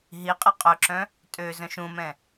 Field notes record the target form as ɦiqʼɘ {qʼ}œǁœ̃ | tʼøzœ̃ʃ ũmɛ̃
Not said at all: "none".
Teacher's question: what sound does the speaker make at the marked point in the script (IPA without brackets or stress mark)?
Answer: qʼ